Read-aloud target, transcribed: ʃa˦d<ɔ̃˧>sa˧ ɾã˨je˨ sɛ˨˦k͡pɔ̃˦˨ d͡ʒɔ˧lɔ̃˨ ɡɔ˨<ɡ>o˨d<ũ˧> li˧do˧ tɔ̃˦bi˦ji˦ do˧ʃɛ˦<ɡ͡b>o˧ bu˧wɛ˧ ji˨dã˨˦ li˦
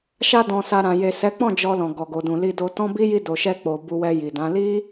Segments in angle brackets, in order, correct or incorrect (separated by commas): correct, correct, incorrect, incorrect